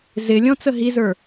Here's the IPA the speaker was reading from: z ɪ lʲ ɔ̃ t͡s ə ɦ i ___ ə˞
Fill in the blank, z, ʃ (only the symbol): z